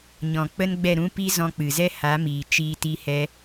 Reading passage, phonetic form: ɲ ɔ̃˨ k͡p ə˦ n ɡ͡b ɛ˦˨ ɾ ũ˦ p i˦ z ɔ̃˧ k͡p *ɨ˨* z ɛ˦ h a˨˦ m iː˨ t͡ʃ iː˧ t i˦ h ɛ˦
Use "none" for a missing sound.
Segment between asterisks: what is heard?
ɨ˨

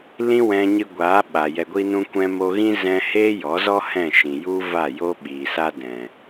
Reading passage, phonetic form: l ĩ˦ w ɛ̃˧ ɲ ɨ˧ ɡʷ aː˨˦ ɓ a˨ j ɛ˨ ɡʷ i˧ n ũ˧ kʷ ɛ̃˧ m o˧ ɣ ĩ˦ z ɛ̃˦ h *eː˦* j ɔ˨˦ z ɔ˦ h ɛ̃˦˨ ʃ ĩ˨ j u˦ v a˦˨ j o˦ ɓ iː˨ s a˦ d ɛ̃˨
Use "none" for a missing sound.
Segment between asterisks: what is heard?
eː˦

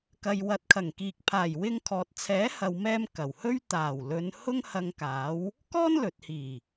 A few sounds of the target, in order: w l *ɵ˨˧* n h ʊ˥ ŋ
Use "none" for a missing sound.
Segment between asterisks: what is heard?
ɵ˨˧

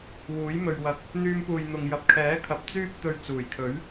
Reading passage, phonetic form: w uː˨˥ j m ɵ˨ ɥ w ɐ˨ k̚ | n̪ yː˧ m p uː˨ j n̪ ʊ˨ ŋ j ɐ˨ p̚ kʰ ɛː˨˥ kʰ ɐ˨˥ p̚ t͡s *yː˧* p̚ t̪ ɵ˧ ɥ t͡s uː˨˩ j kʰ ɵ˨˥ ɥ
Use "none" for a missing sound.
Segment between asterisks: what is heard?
yː˥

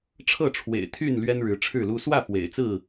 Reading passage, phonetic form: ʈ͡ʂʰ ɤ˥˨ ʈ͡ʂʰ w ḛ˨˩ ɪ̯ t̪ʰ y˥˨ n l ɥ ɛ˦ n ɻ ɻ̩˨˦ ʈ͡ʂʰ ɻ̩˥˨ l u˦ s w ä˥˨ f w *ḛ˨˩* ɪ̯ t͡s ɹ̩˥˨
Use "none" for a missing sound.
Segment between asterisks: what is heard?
ḛ˨˩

